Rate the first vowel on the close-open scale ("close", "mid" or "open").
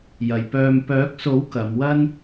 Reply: open